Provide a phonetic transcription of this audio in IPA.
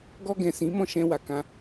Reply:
ɡ ɔ˧ ɡ ɛ̃˨ s ĩ˨˦ m ɔ̃˦˨ ʃ ɛ̃˧ w a˨ k ã˧

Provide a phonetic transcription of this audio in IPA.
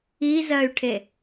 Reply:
i z ɜ y̯ ʈʰ e

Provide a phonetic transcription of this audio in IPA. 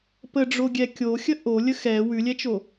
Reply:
p ə ɖ͡ʐ o ɡʲ ɛ kʲ o xʲ ə ʔ o lʲ ə x ɛ w ʉ lʲ ɛ t͡ʃ o

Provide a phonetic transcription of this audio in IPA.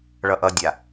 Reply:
ɭ ʌ ʔ ʌ dʲ a

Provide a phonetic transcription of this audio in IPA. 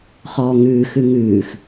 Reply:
χ ɔː ŋ ʉː x ʉ ŋ ʉː x

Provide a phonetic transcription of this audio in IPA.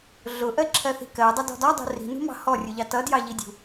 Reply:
ɮ ʊ ʔ ɜ ǁʰ ɜ θ i̤ k ɜ dˤ ʌ d ɔ̤ d ɒ dˤ ṳ r i̤ n ṳ m ɑ̤ h ɔ rʲ u ʎ ɑ t ʌ d j ɑ ʎ i dʲ ṳ

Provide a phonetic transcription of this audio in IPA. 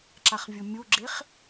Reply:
ǁ a χ vʲ u mʲ u ɡ͡ǁ e χ

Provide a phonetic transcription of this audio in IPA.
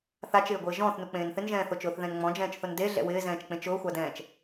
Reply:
θ a t͡ʃ ɪː ɡʷ ɪː ʒ ɔ̃ː θ n u k͡p ẽː n θ ɪ n ʒ ɛ̃ː θ o t͡ʃ ʊː θ ð ɛ̃ n ŋ͡m ɔ̃ d͡ʒ ɛ̃ː t͡ʃ θ ʊ n d e ɮ ɛ̰ w ɪː z ɛ̃ː t͡ʃ k͡p ẽ t͡ʃ ʊː xʷ a d ɛ̃ː t͡ʃ

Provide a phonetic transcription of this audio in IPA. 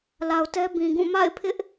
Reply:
l a˨ ʊ̯ t ɛ˦ b ĩ˨ ɡ ũ˦˨ m a̰˦˨ ɪ̯ pʰ ɪ˦ ʔ

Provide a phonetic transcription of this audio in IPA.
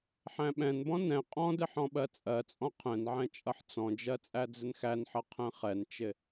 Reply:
ħ æ̃ ɓ ɛ̃ n b ɔ̃ n ɛ̃ qʼ ɔ̃ d ɪ ħ ɔ̃ ɓ ɜ t͡sʼ ɜ t͡sʼ ɔ̃ qʰ ɛ̃ n ʕ ɛ̃ t͡ʃʼ ʌ ħ t͡s ɔ̃ d͡ʒ ɜ t͡sʼ æ d͡z ɪ n x æ n ħ ʌ qʰ ɛ̃ χ ɛ n t͡ʃ ɪ

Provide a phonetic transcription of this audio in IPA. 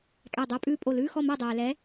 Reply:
kʼ æ˧˩ dˤ œ˧˥˧ pʼ ʉː˥˨ pʼ o˧˩ l ʉː˧˥˧ x ɔ˥˨ m æ˥˨ dˤ æː˩ l ɛ˨˥

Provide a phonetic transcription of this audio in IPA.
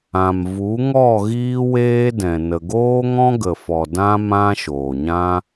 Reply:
ã˨ m v u˨˦ ŋ ɔ˦˨ ɣ iː˦ w eː˦ d ɛ̃˨ n ə˨ ɡ oː˦ ŋ ɔ̃˦ ɡ ə˨ f ɔ˨ d ã˦ m ã˦ ʃ oː˨ ɲ ã˦

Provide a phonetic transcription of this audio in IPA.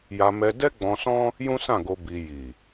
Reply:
j a˧ m ɛ˧ d ɛ˦ ɡ͡b ɔ̃˧ s ɔ̃˦ | j ũ˦ s ã˦˨ ɡ o˧ b i˧ j i˨

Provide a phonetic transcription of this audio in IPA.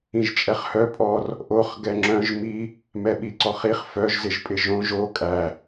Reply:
ĩ ʒ t͡ʃʼ ɛ χ h œ pʼ ɔ r | ʔ o χ ɡ ɛ ŋ͡ǁ œ̃ ʒ m i | m ɛ ɓ i ǀ ɔ χ i χ f œ ʒ z ɪ ʒ pʼ ɪ ʒ õ ʒ o kʼ æ

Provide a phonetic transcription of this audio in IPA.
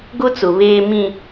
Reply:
ɡ ʊ˦ t͡s ʊ˨ β eː˨ m ĩ˨

